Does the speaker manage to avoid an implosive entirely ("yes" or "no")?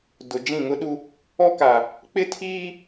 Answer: no